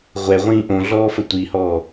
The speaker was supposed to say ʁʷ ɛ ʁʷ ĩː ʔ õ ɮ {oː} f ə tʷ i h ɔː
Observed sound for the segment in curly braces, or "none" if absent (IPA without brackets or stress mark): ɔː